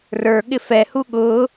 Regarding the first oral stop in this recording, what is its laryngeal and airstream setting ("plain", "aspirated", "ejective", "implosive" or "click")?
implosive